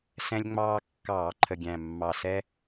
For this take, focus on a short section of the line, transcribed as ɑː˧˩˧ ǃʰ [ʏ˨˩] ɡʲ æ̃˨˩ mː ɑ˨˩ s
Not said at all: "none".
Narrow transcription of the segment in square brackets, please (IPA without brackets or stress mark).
ə˨˩